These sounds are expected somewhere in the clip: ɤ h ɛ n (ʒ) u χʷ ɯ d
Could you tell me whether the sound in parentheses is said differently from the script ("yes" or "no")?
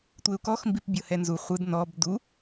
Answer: yes